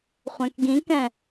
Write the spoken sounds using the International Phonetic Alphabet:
χʷɛ̃kɡĩkɛ̃

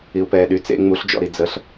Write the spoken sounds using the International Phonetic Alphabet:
iu̯pɛːɗy t͡sḛ ŋ͡muɬd͡ʒɔ̰ɾi d͡zəɬ

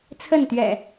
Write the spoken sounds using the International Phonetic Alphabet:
t͡sʰə˥˨nt̪ɥɛ̰˨˩

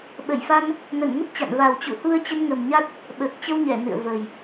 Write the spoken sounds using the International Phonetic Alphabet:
ɓə˧˩jfa˧n | nə˧˩nŋə˦˥t̚t͡ɕa̰˧˨n va˨˩wt͡ɕṵ˧˨hu˧ə̯ t͡ɕə˧nŋə˨˩mɲa˦˥t̚ | ɓəː˨˩k̚t͡ɕə˧wɲɛ˧˩ nɨ̰˧˨ə̯və˨˩j

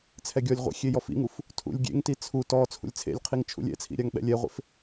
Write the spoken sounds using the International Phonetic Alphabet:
t͡sʰɛɡʲɔlʲʁʷɛ̰ xʲejɔfḭŋuf | tʰṵlʲɡʲḛŋti t͡sʰu tɔ t͡sʰṵlʲt͡sʰḛlʲqʰiŋ t͡ʃʰṵlʲɛ̰t͡sʰḭ ɾʲaŋɓɛ̰lʲɛʁʷḛf

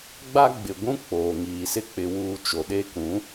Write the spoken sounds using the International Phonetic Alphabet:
ɡ͡ba˦ɡ͡bɪ˨ɡʷũ˦ k͡poː˨ŋiː˨sɪ˦ k͡pɪ˨wuː˨ t͡ʃo˨ɗe˦ kũ˨˦

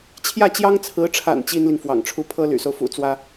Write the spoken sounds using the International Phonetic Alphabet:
t͡ɕʰjä˥˩t͡ɕjɑ˥ŋt͡sʰɹ̩˧˥ʈ͡ʂʰa̰˨˩n t͡ɕi˥nli˨ŋ fwɑ̰˨˩ŋʈ͡ʂʰu˥ pʰɤ˥ly̰˨˩so˦ʊ̯ fṵ˨˩t͡swä˥

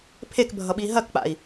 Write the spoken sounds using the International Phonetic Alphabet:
pʰekbʱʌɓi ɦɐkk͡pa̰i̯

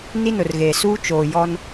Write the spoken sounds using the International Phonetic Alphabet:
ni˦nʊ˨rɣeː˨ suː˦ t͡ʃoː˨jɔ˦n

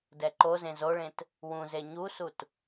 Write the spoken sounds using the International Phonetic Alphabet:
dɛǃozẽ zoɭẽt | wũze ɲusut

